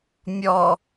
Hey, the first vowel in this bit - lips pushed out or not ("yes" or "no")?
yes